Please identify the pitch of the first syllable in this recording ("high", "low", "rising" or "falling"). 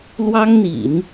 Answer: high